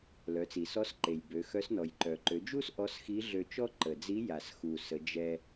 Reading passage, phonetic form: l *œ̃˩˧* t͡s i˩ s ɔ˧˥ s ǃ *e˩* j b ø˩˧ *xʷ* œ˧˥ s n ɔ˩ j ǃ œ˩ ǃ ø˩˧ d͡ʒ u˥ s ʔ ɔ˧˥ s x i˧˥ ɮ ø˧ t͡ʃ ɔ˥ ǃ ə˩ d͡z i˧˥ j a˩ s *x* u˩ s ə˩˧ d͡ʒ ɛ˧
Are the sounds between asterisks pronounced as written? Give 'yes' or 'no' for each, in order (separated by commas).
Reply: no, yes, no, yes